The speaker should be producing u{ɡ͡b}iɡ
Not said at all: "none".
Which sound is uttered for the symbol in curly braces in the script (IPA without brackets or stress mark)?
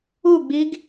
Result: ɡ͡b